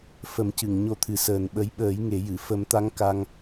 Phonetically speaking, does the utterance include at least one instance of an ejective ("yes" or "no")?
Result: no